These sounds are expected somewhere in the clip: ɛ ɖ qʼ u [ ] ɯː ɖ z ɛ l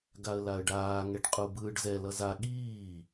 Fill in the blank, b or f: b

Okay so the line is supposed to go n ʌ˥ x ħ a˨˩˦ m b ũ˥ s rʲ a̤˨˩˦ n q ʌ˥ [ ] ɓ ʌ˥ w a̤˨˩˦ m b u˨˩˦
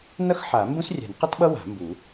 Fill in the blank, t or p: t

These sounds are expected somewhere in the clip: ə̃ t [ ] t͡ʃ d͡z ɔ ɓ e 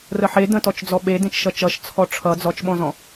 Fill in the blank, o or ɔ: ɔ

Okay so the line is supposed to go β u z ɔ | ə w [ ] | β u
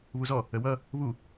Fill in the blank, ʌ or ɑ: ʌ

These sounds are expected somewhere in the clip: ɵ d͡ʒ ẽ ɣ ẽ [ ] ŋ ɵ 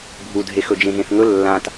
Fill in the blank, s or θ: θ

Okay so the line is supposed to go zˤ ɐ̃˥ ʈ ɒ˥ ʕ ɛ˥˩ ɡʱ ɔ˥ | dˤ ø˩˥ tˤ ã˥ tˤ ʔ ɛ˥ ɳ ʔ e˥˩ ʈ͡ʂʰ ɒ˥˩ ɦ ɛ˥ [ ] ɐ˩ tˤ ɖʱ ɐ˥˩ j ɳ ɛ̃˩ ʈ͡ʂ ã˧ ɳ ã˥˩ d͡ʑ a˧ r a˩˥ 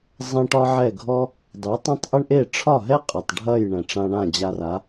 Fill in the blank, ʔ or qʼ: qʼ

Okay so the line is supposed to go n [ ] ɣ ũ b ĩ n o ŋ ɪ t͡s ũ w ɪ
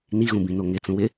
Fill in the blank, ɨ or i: i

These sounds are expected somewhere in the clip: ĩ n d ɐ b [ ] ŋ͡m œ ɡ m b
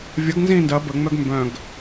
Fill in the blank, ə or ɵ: ə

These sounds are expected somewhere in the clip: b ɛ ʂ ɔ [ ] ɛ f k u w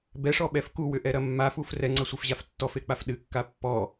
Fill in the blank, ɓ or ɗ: ɓ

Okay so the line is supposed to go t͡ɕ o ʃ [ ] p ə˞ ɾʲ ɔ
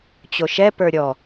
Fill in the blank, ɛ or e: ɛ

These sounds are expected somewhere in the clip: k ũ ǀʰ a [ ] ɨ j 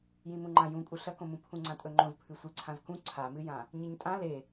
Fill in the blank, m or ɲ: m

